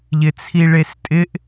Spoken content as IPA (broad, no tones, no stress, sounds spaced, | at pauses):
ʎ ɪ t͡sʰ i ɭ e s tʼ ɪ ʔ